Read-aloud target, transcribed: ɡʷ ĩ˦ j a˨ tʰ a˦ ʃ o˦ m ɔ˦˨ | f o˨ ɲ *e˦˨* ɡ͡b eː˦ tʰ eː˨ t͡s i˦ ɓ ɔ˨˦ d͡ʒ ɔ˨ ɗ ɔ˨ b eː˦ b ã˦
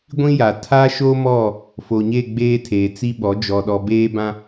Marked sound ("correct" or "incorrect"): correct